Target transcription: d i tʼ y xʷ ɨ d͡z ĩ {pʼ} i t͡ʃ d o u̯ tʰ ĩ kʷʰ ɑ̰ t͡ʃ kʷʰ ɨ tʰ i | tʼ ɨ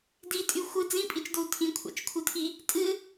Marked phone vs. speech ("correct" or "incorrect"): correct